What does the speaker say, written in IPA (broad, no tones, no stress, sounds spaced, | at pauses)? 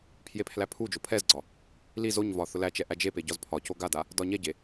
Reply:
pʰ j e pʰ l æ pʰ u d͡ʒ o pʰ ɛ z ɡ͡ǀ ɒ | l i z o ɲ v ɒ θ ʊ l æ t͡ʃ ɛ ʔ æ d͡ʒ e p e ɟ ɒ z pʰ ɒ c o ɡ a d a | d ɒ ɲ ɛ ɟ e